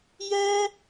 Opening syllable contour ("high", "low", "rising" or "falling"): high